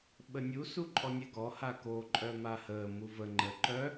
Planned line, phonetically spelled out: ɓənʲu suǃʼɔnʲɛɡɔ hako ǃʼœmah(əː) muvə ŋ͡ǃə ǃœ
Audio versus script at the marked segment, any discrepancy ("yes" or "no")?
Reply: no